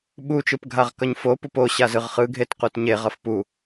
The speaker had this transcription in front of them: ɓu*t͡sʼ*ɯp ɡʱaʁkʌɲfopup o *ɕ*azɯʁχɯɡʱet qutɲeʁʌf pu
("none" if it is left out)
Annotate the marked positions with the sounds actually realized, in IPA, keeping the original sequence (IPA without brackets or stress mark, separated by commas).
t͡ʃ, ɕ